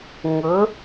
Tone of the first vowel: rising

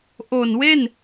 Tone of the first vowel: low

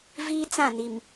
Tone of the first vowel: high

